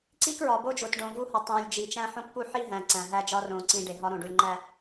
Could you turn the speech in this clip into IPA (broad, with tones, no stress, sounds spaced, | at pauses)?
ǀ i˦ k ɹ ɒ˨ b o˦ d͡ʒ o˨ t ɖ õ˨ v u˦ h ɒ˨ tˤ õ˨ lʲ d͡ʒ i˨ t͡ʃ æ̃˦ ħ õ˦ k p u˦ ħ i˦ ɦ æ̃˨ ǀ æ̃˨ ɦ æ˦ d͡ʒ ɒ˦ r õ˨ ǀ ĩ˨ ɖ e˨ ɦ ɒ˦ ɾ õ˨ ɖ u˨ lʲ ŋ͡ǃ æ˦˨